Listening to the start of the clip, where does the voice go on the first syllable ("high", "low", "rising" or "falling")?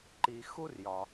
low